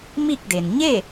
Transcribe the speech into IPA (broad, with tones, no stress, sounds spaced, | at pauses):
m i˥˨ k̚ d e˩ n ɲ e˥˨